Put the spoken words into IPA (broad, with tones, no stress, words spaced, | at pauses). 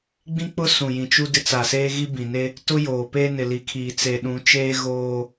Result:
ɡ͡bĩ˦k͡pʊ˦ sũ˨jĩ˨t͡ʃu˦ dɪ˦t͡sa˨seː˦ ɣi˦bĩ˨ne˦ | tʊ˦joː˨pe˦ nɪ˨li˨kʰiː˨ t͡se˨ɗũ˨˦t͡ʃeː˦ ɣoː˦